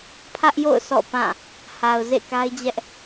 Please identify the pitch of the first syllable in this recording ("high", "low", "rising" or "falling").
high